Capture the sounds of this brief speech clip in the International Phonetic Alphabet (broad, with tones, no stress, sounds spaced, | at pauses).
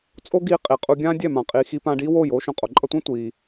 t͡sʼ o˦ ɡ iː˧ qʼ i˨ qʼ u˧ ɡʲ ãː˦ dʲ ɛ˦˨ m ã˨ qʼ iː˨ x i˧ p ã˧ ɖ iː˦ w oː˦˨ j oː˦ ʃ õ˨ qʼ o˨ ǃʼ ʌ˧ tʷ ɛ̃˦ tʷ iː˧